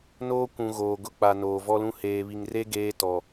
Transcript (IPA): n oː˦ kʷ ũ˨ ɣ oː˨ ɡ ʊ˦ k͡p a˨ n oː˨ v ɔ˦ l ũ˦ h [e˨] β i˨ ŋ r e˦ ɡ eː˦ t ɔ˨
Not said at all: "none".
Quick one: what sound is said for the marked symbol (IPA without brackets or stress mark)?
eː˨